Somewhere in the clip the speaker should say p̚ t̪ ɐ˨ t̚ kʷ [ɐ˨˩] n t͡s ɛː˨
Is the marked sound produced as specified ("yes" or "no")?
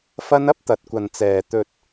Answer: no